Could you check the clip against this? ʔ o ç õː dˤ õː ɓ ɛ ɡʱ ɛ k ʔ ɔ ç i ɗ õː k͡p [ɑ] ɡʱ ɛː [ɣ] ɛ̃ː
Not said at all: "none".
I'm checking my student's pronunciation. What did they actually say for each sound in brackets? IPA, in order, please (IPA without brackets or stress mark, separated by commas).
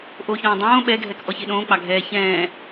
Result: ɑ, ç